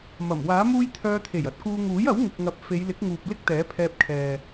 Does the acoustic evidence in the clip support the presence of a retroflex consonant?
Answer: no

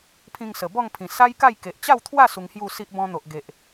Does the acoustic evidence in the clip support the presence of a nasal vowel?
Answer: yes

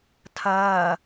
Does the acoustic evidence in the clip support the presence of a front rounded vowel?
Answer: no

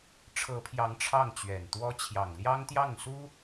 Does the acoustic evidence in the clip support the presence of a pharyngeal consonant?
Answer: no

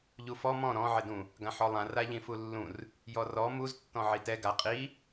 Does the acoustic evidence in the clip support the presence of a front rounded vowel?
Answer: no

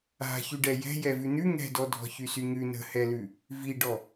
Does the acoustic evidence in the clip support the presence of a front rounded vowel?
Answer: yes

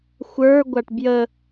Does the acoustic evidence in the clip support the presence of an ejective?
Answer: no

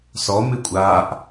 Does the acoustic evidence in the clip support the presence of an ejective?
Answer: yes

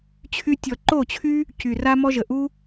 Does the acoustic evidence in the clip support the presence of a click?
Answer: yes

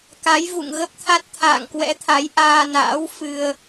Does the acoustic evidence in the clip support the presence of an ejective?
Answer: no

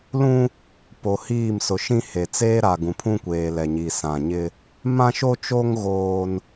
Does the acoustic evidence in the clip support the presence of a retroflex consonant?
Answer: no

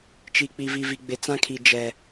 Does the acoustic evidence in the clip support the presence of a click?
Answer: no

